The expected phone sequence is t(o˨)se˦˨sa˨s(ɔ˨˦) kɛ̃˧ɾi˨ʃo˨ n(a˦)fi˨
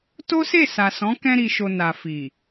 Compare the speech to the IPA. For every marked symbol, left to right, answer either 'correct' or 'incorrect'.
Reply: incorrect: o˦, incorrect: ɔ̃˨˦, incorrect: a˨

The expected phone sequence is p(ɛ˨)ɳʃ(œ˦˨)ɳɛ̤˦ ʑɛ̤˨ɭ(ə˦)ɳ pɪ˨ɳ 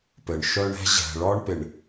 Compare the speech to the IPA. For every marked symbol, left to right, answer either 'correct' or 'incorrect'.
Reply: incorrect: ɘ˨, incorrect: œ˦, incorrect: ɔ˦

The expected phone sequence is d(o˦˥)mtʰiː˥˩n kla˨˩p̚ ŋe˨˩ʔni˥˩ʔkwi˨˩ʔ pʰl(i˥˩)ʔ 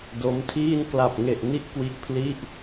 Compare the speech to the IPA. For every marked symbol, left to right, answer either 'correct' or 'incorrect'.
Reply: correct, correct

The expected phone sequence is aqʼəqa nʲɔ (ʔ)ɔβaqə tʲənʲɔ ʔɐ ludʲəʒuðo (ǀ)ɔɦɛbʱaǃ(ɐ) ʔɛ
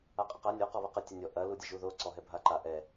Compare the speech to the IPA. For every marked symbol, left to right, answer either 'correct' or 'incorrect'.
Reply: incorrect: q, correct, incorrect: a

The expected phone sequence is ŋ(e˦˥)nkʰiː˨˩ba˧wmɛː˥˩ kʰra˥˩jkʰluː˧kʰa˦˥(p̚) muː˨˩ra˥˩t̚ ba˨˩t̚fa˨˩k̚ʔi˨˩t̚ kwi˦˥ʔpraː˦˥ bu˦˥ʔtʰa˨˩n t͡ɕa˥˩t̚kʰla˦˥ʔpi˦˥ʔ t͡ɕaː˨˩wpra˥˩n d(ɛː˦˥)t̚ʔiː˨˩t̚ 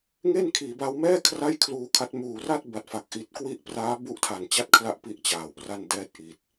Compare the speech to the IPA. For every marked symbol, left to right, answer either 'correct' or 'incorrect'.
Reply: incorrect: e˥˩, incorrect: t̚, correct

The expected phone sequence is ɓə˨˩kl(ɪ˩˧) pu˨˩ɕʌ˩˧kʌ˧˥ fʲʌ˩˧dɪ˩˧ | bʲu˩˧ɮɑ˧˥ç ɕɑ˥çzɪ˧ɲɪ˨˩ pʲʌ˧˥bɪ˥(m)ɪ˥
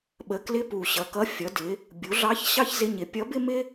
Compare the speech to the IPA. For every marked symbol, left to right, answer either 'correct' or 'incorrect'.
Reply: incorrect: ɪ˧˥, correct

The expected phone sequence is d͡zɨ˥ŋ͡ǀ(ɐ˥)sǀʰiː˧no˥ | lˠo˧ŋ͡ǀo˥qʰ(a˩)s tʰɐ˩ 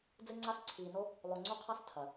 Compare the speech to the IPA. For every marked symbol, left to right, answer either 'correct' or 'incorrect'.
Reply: incorrect: a˥, incorrect: a˥

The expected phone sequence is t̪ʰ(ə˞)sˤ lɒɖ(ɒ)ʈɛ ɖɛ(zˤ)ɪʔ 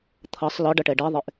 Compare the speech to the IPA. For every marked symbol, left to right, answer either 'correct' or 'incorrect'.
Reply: incorrect: ʌ, incorrect: ʌ, incorrect: ðˤ

